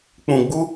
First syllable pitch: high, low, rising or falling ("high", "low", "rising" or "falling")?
low